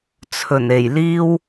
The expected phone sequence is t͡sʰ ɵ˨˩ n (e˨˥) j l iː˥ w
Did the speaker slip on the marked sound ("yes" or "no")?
yes